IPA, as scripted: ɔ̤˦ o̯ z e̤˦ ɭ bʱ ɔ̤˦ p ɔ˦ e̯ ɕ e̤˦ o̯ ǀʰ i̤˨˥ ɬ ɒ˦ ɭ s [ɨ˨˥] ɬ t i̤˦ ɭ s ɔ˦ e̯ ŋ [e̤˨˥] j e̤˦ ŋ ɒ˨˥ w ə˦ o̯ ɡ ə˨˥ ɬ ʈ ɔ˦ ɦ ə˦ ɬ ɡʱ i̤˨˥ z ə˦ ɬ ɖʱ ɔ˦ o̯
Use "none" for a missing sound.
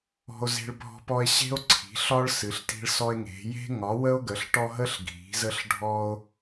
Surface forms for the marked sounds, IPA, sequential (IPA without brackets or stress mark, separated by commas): ɨ˨˥, e̤˨˥